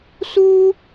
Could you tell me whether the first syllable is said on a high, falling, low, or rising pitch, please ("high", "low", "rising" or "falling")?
high